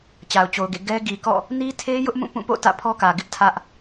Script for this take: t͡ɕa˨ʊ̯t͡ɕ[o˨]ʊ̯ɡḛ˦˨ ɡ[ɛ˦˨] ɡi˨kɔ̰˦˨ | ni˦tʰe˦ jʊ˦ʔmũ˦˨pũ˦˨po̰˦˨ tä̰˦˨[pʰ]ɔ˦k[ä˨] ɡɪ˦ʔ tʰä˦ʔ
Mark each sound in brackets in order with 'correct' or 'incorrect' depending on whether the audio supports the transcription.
correct, incorrect, correct, correct

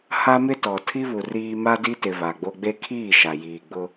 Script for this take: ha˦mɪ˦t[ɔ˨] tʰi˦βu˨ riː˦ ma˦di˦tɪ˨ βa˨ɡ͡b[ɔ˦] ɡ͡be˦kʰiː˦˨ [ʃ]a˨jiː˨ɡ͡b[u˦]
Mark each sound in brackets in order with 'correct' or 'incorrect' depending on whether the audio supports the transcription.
correct, incorrect, correct, incorrect

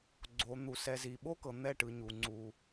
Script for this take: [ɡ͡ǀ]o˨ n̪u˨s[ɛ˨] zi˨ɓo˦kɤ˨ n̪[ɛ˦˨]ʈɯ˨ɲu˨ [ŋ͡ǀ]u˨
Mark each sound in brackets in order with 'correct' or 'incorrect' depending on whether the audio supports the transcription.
correct, correct, correct, correct

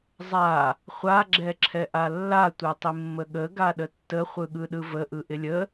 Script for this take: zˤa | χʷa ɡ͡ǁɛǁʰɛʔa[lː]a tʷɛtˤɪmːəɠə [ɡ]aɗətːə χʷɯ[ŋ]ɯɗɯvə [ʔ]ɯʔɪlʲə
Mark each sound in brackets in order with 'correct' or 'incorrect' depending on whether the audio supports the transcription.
correct, correct, incorrect, correct

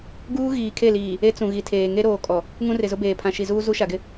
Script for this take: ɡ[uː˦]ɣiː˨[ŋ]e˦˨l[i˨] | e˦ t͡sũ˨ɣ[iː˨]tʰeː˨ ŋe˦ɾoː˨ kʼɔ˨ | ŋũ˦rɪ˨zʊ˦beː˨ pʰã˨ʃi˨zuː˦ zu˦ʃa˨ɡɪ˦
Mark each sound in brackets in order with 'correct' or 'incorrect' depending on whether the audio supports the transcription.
correct, incorrect, incorrect, incorrect

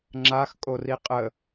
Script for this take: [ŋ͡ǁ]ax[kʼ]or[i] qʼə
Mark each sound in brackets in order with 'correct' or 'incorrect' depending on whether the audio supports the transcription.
correct, correct, correct

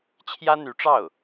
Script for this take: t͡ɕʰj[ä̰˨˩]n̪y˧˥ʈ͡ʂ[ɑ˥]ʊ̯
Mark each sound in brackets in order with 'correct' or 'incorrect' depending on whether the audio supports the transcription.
incorrect, incorrect

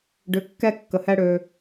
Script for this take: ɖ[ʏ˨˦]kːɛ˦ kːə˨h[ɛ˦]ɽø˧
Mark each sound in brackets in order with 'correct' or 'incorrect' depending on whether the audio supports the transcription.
correct, correct

